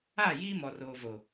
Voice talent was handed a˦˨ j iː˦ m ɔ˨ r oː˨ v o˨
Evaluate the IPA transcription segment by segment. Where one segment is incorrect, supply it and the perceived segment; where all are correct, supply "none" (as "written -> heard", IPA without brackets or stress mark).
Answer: none